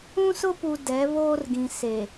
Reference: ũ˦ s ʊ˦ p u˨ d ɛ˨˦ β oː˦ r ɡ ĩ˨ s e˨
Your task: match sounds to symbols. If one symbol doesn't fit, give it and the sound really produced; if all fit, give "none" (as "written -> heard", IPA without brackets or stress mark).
none